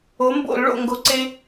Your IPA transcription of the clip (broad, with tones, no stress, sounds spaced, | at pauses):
o˩˥ m b o̰˧˩˧ l ɭ o̰˥˩ ŋ ɡ o˧ ǀ e˥